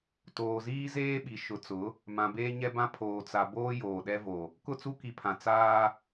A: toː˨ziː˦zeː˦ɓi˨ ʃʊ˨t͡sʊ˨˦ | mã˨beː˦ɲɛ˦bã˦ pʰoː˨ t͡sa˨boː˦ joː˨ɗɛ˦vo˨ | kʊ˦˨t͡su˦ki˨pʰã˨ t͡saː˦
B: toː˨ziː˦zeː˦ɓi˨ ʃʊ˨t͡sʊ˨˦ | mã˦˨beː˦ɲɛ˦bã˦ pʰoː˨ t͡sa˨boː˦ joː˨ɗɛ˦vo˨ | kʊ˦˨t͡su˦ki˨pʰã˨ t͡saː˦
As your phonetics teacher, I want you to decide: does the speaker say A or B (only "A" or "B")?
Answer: A